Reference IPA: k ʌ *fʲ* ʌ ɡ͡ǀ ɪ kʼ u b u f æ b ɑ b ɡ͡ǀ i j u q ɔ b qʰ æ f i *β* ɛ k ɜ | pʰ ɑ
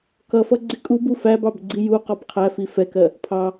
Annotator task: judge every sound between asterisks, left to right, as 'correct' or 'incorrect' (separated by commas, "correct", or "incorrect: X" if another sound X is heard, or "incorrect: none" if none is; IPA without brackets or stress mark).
incorrect: f, incorrect: f